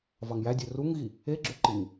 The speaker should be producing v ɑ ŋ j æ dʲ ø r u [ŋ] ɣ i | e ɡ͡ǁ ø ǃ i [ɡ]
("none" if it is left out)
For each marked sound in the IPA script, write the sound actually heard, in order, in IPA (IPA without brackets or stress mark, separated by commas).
ŋ, ŋ